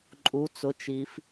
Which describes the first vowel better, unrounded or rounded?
rounded